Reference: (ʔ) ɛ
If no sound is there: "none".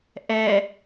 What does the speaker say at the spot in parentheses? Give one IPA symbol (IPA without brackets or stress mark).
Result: ʔ